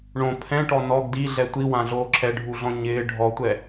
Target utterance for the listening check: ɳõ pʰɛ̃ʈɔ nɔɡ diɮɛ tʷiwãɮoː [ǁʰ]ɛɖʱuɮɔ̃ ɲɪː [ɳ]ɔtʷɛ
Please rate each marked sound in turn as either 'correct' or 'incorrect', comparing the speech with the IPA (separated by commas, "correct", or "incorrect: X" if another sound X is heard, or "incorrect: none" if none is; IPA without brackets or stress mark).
correct, incorrect: ɖʱ